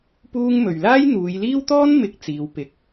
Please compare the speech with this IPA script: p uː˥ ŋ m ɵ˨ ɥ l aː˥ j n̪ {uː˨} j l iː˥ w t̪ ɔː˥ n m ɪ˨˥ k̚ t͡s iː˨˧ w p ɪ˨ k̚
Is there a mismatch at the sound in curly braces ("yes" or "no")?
yes